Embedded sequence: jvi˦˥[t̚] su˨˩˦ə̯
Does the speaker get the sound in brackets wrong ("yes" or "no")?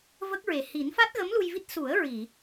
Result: no